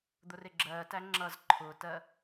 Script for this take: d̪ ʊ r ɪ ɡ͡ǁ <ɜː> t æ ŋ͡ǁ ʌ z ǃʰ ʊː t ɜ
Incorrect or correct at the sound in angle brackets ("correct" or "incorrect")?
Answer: correct